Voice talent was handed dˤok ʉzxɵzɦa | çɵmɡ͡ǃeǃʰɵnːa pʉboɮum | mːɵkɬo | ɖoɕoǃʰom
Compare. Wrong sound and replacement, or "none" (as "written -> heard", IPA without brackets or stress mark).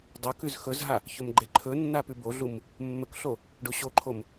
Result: none